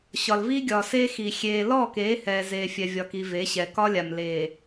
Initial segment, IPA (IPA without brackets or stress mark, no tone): ɕ